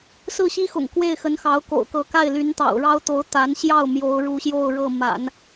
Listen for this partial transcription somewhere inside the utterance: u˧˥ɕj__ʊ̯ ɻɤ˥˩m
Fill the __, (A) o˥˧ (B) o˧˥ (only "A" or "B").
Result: A